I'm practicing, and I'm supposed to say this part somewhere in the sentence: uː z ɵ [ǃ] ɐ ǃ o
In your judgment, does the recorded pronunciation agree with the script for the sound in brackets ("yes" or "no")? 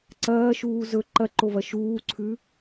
yes